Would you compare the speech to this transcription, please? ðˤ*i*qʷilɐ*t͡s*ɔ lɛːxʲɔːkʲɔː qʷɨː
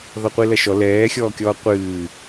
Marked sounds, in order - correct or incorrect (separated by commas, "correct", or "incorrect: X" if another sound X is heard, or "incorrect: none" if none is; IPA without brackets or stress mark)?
incorrect: ɨ, incorrect: ʃ